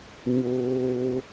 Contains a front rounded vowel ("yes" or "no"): no